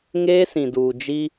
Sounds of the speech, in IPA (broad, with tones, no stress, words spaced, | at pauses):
ŋeː˦sĩ˨duː˨ d͡ʒi˦